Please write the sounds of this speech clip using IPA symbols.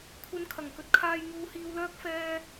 kʷʰ ɐ˧ n kʰ ɐ˨˩ ŋ k ɵ˧ t̚ kʰ aː˧ j ŋ uː˧ h iː˧ w l œː˥ k̚ f ɛː˧

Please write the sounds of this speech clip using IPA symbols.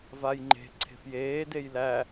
v a j ŋ͡ǃ e̤ ǀʰ e̤ f j eː d e j l æ

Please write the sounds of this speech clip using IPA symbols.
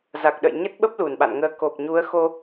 z a˨˩ k̚ ɗ ə̰˧˨ j ɲ ə˦˥ t̚ ɓ ə˦˥ p̚ l u˧˩ n ɓ a̰˧˨ n ŋ əː˧ k o˨˩ p̚ ɲ u˨˦ ə̯ x o˧

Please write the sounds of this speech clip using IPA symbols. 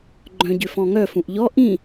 ɡ͡ǃ œ̃ ɟ ʏ f ɔ̃ ŋ œ f ũ ʔ ʎ ɔ ʔ ĩ

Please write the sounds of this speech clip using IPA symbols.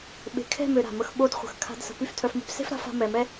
ɓ e̤˨ kʰ ɛ̤˦˨ m ø˨ ɾ a̤˨ m ə˧ x ɓ o˧ d χʷ ə̤˨ x kʰ a̤˧ d s ə̤˨ p y˦ f tʰ œ˧ f m e̤˦ p s e̤˦ f ɾ a̤˨˦ f a̤˧ m ɛ˨ m ɛ˦

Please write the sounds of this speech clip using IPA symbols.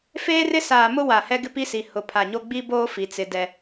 f eː˦ r ɪ˦ s aː˨ m ʊ˦ w a˨ h ɛ˦ ɡ ɪ˦ p i˦ s i˨ h ʊ˨ pʰ a˨ ɲ o˦ ɡ͡b i˦ b oː˦ f i˨ t͡s ɪ˨ d ɛ˨

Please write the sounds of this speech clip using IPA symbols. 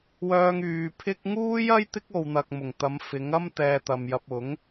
w œː˧ ŋ yː˨˧ pʰ ɪ˥ k̚ ŋ uː˥ j ɐ˥ j t̪ ɪ˥ k̚ o˨ w n̪ ɐ˨ k̚ m ʊ˨˩ ŋ t̪ ɐ˨˥ m f ɪ˨˥ ŋ ɐ˥ m t̪ ɛː˧ t̪ ɐ˨ m j ɐ˨ p̚ ʊ˨˥ ŋ

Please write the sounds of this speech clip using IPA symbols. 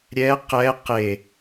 ɾʲ ɛ q ɛ q e

